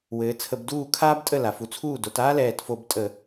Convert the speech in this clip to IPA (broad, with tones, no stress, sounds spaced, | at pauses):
w ɘː˩˧ t͡sʰ ə˧˩˧ b d uː˥˩ kʰ aː˥ b tʼ ə˥˩ l a˩˧ f u˧ t͡sʰ uː˥˩ d o˩˧ t aː˥ l ɛː˧˩ t f o˧˩˧ b tʼ ə˧˩˧